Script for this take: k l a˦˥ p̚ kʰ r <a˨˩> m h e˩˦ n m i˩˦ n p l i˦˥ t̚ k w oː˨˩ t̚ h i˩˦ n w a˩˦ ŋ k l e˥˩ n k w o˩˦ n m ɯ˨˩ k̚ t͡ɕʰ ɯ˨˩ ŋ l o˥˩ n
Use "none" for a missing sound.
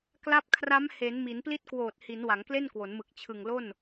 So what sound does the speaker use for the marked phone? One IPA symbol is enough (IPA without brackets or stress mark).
a˦˥